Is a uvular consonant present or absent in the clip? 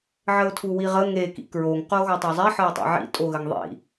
present